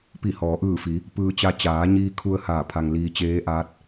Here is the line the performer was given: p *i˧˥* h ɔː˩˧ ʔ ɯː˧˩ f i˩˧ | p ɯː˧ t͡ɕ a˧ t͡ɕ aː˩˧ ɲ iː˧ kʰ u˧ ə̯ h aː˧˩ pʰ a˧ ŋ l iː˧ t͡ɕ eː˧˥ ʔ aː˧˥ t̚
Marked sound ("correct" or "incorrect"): incorrect